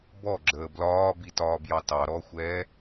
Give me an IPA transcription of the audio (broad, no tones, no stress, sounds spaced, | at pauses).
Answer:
b ɔ ɡ͡ǁ əː b l ɒː b i t ɒː b j ɑ t ɑ ɾ ɔ xʷ ɛː